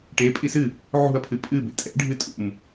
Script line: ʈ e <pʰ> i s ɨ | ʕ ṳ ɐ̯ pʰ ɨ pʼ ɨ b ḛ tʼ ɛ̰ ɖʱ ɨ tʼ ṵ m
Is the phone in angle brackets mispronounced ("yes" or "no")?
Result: yes